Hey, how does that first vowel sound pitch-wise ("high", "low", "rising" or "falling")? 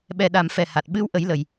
low